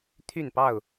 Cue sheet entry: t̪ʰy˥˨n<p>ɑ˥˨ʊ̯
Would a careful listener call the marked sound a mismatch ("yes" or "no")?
no